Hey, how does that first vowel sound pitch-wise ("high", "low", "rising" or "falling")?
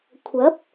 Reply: rising